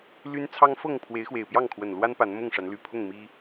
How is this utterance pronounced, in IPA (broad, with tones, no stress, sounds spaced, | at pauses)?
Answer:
l y˦ n t͡sʰ ɑ˦ ŋ f ɤ˥˨ ŋ pʰ w e˨˦ ɪ̯ x w e˨˩ ɪ̯ p j ɑ˥˨ ŋ kʰ w ə˨˩ n l w a˦ n p a˨˦ n m ʊ˥˨ ŋ ʂ a˨˦ n l y˨˩ pʰ ʊ˥˨ ŋ m i˦